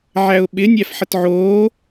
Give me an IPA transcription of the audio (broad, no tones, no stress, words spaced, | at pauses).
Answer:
ʕæʊ̯ɓɪ nʲæfħətʕoː